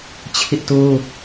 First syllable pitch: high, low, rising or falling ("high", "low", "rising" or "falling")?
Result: high